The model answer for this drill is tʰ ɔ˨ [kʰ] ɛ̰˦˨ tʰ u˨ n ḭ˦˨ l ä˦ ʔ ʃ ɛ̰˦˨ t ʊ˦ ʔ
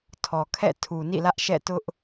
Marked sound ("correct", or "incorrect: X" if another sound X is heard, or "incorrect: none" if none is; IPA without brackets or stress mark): correct